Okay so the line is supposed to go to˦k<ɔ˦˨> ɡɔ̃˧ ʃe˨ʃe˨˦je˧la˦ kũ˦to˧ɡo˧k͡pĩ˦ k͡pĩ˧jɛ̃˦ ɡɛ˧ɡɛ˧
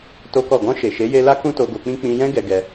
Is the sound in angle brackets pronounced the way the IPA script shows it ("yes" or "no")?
yes